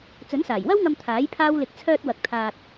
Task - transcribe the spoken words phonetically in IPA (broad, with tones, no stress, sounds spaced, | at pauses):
t͡s ɵ˨˥ n s aː˨˩ j w ɐ˥ w ŋ ɐ˧ m t̪ʰ aː˨˥ j pʰ aː˥ w l ɪ˧ k̚ t͡sʰ œː˧ t̚ w ɐ˨ k̚ t̪ʰ aː˧ t̚